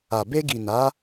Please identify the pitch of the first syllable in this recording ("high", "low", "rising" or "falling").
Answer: low